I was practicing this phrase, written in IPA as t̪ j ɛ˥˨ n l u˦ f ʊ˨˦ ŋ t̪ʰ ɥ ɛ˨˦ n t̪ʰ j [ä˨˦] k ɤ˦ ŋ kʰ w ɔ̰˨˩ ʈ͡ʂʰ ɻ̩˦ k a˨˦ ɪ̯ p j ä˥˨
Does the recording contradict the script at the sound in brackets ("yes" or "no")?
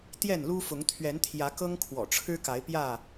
no